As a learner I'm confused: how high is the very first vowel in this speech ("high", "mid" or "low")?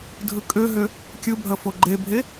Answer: high